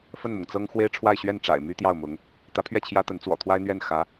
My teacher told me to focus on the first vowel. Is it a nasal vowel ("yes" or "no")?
no